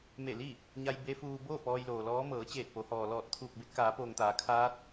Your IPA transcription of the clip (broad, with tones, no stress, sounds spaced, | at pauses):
m e˧˩ l i˥˨ | ɲ a˧ j b e˧˥ f uː˧ b oː˥˨ p ɔː˧ j l oː˩ l ɔː˧˥ m ɤː˩˧ t͡ɕ eː˧˩ t̚ p o˩˧ h ɔː˩ l ɔː˧˩ t̚ t̪ʰ uː˧˩ k̚ b e˧ t̚ k aː˩˧ p oː˩ ŋ t̪ aː˩˧ kʰ aː˧˥ t̚